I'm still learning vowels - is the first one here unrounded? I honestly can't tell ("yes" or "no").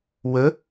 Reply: yes